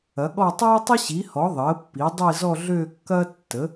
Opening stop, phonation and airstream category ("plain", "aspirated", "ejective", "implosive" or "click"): implosive